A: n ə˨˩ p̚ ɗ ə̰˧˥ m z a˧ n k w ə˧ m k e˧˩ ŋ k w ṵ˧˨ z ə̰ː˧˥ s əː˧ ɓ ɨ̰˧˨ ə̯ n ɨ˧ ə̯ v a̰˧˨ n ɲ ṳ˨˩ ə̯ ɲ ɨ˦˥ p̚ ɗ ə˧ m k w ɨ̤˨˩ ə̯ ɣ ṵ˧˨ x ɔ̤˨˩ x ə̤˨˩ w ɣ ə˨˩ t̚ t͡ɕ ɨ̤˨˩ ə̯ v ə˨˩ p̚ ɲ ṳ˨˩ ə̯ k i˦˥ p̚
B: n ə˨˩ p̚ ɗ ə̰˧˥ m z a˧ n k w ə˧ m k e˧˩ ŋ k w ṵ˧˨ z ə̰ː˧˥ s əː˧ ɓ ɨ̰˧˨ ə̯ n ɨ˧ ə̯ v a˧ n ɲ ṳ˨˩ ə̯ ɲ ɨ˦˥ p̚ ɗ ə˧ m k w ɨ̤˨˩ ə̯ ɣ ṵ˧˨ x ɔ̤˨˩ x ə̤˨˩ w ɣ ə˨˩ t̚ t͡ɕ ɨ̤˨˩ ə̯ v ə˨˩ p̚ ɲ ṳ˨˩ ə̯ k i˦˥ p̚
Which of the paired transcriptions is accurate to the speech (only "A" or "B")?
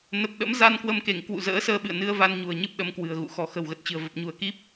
B